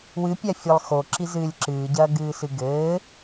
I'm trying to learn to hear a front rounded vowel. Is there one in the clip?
no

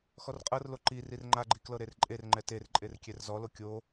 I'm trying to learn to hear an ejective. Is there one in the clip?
yes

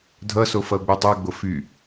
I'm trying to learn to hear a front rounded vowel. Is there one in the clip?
yes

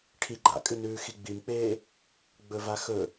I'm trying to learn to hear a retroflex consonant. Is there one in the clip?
yes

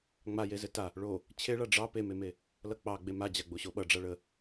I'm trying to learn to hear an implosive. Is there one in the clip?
yes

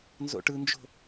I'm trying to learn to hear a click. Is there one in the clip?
no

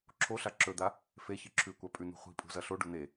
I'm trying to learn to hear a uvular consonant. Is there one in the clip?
yes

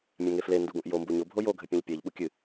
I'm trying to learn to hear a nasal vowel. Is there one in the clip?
yes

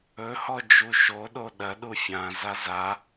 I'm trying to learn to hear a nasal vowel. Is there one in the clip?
yes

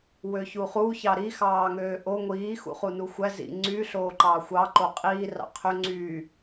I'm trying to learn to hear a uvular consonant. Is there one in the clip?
yes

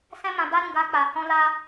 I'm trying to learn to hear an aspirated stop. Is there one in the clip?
no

